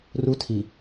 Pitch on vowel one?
high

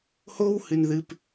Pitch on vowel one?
high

